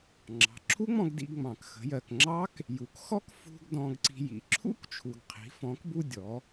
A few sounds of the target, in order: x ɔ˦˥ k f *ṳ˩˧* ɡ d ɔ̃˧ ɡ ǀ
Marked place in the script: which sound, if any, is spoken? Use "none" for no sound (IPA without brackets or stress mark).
ṳ˧